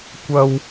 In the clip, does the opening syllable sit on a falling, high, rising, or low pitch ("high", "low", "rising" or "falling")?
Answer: high